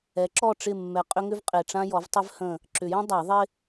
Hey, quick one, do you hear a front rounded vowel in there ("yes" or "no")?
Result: yes